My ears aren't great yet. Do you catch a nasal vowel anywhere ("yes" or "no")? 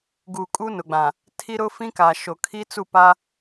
yes